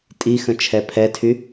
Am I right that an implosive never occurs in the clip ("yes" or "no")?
yes